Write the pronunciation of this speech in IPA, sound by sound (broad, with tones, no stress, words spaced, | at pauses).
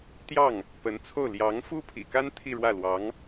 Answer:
t̪jɑ˥˩ŋ | pə˧˥nt͡sʰo˥˩ʊ̯ ljɑ˧˥ŋfu˥pʰḭ˨˩ka˥n t̪ʰi˥˧ɻwä˥˩lwɑ˧˥ŋ